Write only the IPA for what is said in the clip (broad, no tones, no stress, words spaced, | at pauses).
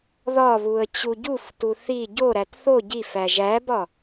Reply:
ðɒβuə̯ t͡ɕuɟuftu θi ɟoɾæt θo ɟif æʒæbɒ